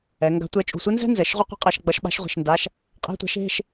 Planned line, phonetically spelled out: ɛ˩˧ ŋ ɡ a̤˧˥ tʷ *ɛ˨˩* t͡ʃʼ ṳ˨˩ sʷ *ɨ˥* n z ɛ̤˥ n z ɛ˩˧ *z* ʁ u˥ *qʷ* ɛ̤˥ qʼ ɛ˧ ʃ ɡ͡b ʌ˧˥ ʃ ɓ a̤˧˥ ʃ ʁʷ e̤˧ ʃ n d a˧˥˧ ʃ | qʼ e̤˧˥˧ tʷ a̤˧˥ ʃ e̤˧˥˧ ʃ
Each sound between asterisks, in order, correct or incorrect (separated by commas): incorrect, incorrect, incorrect, correct